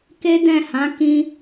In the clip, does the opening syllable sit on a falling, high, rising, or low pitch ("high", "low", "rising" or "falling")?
high